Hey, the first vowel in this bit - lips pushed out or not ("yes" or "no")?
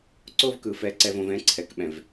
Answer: yes